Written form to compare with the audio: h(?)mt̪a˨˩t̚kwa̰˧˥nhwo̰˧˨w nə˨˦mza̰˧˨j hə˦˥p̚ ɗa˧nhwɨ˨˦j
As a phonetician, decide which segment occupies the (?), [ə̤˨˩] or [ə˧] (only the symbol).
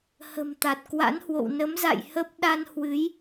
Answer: ə̤˨˩